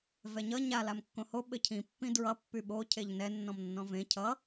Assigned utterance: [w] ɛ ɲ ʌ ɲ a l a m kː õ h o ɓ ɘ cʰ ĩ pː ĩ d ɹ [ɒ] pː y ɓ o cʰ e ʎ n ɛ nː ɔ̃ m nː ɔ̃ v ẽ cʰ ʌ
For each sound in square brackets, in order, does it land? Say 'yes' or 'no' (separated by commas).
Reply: no, no